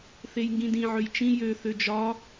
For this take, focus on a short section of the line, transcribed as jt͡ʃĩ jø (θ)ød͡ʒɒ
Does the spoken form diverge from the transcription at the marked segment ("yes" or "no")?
no